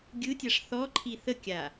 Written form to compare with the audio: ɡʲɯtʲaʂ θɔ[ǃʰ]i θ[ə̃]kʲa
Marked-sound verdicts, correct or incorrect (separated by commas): correct, incorrect